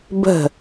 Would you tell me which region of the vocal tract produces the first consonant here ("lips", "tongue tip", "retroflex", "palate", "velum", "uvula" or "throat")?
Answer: lips